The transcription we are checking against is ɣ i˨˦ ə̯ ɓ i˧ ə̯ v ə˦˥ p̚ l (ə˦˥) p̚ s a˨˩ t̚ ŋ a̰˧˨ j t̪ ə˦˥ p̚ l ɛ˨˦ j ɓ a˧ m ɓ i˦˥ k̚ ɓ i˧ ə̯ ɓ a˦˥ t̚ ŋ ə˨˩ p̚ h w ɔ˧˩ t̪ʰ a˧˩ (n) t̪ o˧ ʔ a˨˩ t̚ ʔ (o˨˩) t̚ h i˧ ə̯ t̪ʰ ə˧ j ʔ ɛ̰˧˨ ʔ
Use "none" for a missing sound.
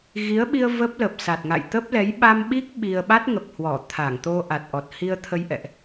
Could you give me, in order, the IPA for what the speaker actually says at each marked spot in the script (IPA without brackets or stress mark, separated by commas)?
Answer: ə˨˩, ŋ, ɔ˨˩